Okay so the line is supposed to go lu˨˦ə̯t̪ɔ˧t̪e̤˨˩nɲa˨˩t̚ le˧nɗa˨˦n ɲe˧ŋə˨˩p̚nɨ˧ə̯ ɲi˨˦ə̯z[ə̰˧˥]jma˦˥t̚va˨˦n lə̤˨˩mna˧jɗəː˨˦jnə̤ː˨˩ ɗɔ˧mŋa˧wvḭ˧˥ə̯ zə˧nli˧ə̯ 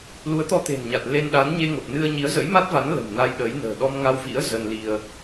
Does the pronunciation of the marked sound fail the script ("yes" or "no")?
no